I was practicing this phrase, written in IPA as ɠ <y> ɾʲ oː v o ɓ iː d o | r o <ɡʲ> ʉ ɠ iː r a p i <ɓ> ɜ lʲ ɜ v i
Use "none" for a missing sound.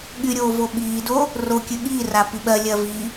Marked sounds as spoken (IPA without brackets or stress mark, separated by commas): y, kʲ, ɓ